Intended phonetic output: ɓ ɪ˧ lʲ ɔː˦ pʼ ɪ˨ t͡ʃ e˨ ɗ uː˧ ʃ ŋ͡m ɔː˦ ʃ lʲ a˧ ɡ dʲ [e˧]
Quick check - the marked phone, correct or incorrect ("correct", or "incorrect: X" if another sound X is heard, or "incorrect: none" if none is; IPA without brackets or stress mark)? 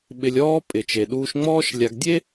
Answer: incorrect: e˦